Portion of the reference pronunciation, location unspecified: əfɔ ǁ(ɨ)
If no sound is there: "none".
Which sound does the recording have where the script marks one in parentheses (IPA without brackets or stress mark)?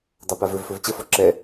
ɛ